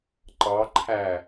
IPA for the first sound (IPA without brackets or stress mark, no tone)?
ǃ